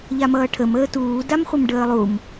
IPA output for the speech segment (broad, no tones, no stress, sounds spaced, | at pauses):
ʎ a m ʌː ʈʰ ə m əː t uː d a m χʷ ə m ɖ əː lˠ u m